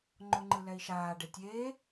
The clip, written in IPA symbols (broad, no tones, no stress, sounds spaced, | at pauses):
ŋ͡ǃ o ŋ͡ǃ ɯ l ɛ i̯ ʃ aː ɖ e tʲ eː